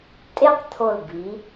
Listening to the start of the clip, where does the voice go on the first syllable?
falling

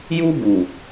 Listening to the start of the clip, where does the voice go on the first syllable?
high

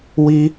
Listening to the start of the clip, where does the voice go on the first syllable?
high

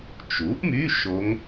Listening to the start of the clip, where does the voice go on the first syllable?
rising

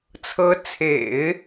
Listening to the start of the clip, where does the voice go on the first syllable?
rising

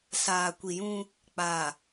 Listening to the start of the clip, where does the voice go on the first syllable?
low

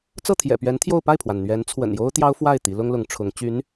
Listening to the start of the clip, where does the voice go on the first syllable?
falling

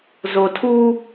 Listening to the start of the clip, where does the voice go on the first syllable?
low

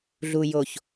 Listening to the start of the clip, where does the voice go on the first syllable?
low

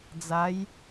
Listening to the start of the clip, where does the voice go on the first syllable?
rising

